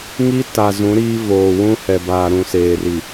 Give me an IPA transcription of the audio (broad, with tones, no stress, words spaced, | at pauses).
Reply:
ŋi˦ta˨ zũ˨˦ɾiː˦ voː˨ wũ˦hɛ˨ baː˨ɾũ˨seː˨ri˨